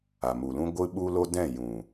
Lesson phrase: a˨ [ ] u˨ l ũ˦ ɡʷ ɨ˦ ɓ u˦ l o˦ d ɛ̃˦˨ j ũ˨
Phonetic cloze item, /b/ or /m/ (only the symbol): m